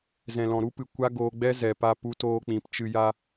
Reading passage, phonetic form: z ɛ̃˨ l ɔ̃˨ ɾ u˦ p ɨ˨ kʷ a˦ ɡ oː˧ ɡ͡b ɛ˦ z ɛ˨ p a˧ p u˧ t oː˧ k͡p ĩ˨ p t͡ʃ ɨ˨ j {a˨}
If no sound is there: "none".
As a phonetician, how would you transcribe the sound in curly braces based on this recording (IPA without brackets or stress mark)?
a˧